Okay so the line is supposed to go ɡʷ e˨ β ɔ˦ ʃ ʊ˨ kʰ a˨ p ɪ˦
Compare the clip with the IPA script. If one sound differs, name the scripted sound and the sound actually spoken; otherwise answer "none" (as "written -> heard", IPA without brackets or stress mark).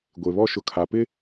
none